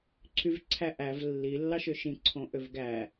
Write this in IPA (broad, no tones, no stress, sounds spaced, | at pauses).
ǀʰ y v ǀʰ æ ʔ æ v lː i lː ɑ ʃ ø ʃ ĩ ǀʰ õ ʔ ø v ɡ æ